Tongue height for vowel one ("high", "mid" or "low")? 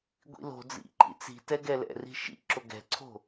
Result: high